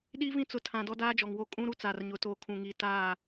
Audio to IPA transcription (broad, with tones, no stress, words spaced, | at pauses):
ɗiː˦vĩ˦ t͡sʊ˨tʰã˨ dɔ˦daː˦d͡ʒɔ˨ŋwo˦ kʼũ˦ɾu˦ t͡saː˨rɲʊ˨˦ toː˨kʰũ˨ŋiː˨taː˦˨